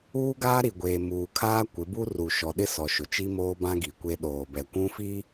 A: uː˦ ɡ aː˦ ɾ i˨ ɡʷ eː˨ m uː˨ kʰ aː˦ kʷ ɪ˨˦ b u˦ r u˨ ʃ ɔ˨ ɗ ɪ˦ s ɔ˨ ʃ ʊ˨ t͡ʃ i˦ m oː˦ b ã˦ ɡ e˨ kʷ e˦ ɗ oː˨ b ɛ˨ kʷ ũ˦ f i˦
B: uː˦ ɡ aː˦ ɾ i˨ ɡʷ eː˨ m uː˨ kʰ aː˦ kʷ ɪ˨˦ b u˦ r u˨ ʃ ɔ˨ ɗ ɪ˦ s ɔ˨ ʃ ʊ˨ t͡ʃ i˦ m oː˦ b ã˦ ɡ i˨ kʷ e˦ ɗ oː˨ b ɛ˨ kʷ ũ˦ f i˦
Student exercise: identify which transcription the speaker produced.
B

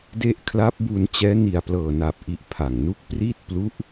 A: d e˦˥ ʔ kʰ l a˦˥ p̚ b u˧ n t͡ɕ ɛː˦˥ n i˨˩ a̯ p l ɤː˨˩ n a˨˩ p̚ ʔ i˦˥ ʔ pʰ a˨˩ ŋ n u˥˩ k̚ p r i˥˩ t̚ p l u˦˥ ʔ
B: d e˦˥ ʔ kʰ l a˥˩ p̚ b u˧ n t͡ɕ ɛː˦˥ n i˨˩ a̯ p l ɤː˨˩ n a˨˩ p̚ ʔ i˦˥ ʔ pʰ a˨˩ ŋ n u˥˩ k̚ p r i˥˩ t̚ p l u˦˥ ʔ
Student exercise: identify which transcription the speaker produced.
A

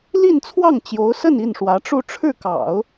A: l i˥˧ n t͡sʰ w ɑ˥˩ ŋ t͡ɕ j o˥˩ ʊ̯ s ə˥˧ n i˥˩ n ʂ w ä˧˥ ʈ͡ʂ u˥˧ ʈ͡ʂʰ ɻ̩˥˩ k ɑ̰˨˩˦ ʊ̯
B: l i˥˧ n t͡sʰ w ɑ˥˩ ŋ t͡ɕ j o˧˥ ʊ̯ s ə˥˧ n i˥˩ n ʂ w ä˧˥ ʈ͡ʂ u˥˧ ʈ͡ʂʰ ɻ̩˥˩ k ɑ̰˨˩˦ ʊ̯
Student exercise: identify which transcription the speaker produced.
B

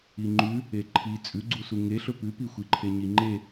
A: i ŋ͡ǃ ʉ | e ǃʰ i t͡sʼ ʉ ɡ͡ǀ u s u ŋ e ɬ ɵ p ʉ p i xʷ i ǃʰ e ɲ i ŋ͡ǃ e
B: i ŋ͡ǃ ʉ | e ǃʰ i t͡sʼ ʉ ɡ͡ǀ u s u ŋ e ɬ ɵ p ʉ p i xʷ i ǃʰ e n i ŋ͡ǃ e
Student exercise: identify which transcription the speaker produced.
A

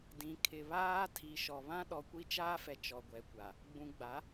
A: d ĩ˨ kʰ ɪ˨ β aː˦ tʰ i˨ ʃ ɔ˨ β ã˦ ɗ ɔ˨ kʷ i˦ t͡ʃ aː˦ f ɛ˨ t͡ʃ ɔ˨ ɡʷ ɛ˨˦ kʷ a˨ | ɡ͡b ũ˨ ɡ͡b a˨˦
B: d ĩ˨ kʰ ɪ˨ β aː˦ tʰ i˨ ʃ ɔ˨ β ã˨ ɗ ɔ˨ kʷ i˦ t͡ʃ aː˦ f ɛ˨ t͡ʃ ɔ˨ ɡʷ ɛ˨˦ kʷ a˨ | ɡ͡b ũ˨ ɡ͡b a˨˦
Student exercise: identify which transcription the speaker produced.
A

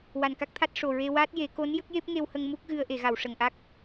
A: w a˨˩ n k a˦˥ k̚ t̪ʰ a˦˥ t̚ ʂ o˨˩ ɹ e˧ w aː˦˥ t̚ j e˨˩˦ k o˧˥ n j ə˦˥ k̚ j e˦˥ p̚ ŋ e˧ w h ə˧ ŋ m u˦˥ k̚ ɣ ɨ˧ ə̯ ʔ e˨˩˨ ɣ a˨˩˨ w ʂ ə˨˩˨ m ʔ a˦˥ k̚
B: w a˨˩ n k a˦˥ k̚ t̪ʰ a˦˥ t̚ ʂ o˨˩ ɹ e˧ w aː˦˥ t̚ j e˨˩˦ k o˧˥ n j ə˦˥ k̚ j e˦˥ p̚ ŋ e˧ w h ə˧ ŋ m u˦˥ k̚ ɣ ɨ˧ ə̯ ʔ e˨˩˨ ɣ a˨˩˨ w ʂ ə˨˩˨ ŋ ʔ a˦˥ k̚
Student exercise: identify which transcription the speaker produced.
B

